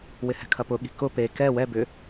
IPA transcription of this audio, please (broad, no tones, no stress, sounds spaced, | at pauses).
w ɪ h ɛ̤ kʰ ɐ p ʊ ɠ i̤ k ʊ p e k ɛ w ɛ b ʏ